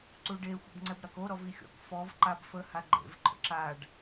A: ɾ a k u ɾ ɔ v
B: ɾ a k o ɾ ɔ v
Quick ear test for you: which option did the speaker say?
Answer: B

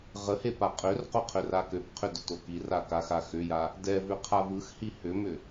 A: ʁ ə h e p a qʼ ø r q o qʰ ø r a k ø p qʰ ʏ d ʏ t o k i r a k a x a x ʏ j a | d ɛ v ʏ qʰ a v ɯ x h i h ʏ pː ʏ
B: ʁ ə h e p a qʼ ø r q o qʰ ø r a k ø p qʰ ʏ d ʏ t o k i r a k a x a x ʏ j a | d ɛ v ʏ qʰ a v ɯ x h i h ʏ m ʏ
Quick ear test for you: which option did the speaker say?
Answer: B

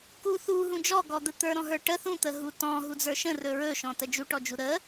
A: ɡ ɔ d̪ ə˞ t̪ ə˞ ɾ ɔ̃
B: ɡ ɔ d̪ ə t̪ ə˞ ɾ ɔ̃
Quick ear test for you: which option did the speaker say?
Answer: B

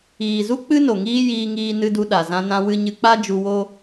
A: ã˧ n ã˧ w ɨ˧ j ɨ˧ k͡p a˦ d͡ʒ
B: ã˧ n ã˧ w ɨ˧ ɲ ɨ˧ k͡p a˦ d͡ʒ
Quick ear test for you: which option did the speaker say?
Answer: B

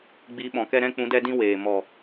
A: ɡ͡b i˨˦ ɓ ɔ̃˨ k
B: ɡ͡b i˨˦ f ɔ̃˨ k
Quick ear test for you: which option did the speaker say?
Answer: A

